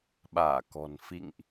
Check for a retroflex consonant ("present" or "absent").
absent